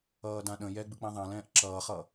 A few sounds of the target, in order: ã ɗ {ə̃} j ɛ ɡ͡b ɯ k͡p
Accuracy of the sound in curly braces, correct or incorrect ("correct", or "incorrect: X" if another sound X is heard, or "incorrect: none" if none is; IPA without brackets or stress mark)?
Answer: correct